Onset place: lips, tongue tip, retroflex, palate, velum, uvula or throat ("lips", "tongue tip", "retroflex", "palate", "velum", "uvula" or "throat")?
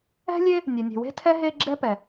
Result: tongue tip